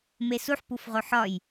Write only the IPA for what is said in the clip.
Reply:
mesuħ pufʁoħɒj

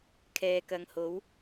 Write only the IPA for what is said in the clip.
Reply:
kʰɛː˨kɐ˨˧ŋho˨˥w

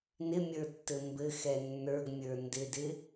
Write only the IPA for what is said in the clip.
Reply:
nɪmʲə˞ tːɘmbɘxɛ nːə˞ɡmʲə˞ ndɪdɪ

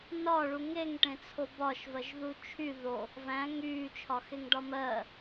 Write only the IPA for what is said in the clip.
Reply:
nɒɭu ŋeŋʈẽt͡sʰo bɒʃvɜʒðu t͡ʃʰy ðo | væ̃ ŋyːt͡ʃʰɒxeŋɖɒ mɜ

